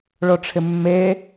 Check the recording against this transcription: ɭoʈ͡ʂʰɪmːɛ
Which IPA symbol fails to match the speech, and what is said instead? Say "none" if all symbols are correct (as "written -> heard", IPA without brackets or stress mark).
ɛ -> e